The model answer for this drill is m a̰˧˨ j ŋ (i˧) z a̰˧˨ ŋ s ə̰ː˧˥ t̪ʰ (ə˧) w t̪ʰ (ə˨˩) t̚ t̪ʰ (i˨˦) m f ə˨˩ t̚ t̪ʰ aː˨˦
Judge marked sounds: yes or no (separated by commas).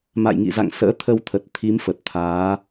no, yes, yes, yes